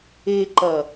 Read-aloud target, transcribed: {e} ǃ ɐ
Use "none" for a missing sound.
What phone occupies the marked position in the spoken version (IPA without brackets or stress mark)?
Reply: e